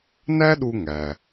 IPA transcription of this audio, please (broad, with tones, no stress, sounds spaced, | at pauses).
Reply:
n æ˥ ɗ u˧ ŋ æ˩